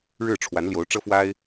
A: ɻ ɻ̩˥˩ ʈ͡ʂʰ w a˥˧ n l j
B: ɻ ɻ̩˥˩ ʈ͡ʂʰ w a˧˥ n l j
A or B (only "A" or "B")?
B